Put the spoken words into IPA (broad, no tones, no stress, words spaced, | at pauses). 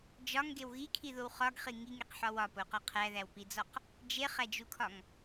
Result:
d͡ʒɒŋɡew ɣikʰiðow χɒɡχi ŋiŋeqħɒ wɒpoqɒ qʰæðæwpid͡zɒq | d͡ʒeχæd͡ʒukʰɒŋ